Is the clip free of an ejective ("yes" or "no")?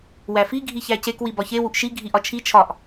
yes